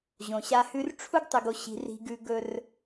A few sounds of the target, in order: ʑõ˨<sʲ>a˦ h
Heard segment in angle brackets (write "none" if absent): ɕ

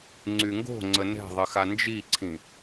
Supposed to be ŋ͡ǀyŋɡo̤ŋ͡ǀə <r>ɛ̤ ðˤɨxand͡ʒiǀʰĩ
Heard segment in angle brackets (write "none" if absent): n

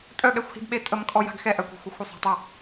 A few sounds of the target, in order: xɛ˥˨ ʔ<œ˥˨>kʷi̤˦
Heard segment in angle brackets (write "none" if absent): œ˥˨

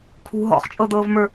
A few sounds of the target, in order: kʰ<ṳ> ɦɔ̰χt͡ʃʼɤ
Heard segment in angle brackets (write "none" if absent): ṳ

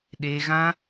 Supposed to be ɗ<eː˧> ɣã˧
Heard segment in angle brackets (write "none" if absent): eː˧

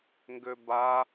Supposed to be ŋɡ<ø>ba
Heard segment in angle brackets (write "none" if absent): ø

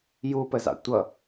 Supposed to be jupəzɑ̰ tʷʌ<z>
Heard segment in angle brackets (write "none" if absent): none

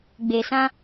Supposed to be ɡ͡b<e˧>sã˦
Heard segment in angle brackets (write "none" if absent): e˧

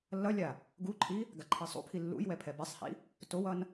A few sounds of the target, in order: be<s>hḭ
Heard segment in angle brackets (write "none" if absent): sˤ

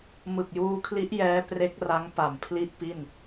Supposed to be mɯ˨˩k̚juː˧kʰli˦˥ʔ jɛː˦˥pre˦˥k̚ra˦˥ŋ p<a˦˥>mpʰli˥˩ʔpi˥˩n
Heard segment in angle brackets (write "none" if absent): a˨˩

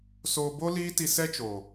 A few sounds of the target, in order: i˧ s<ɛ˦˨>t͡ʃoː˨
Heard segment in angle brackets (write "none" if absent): ɛ˦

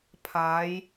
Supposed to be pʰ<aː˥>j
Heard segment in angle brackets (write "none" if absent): aː˨˧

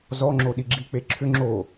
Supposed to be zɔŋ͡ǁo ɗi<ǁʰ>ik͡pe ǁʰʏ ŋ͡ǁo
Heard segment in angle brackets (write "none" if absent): ɡ͡ǁ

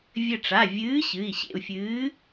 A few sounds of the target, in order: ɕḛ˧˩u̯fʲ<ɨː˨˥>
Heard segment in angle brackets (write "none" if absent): ɨː˨˥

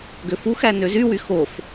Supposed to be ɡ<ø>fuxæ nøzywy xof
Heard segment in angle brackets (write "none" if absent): ø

